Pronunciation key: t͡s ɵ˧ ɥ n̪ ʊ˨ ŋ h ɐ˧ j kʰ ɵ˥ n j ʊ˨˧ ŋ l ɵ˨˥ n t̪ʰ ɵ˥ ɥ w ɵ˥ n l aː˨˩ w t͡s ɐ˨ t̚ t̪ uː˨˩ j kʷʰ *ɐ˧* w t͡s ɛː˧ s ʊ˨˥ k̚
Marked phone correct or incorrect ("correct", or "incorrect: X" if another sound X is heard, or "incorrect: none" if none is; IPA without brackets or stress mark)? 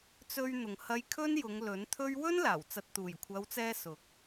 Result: incorrect: ɐ˨˧